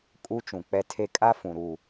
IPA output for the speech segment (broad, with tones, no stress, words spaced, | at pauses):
kʼu˦t͡ʃũ˨k͡pɛ˦tʰe˦ kʼa˦ fũ˨ɾu˦˨